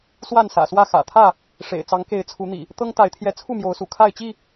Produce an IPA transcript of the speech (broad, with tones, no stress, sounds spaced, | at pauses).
s w a˥˨ n s ä̰˨˩ s w ä˥˨ x ä̰˨˩ t̪ʰ ä˥˨ | ʂ ḛ˨˩ ɪ̯ t͡s ɑ˨˦ ŋ k e˨˦ ɪ̯ t͡sʰ u˨˦ n̪ ḭ˨˩ | t̪ ɤ˦ ŋ t̪ a˨˦ ɪ̯ t̪ʰ j ɛ˨˦ t͡sʰ u˥˨ m j o˨˦ ʊ̯ s ṵ˨˩ kʰ a˥˨ ɪ̯ t͡ɕ i˥˨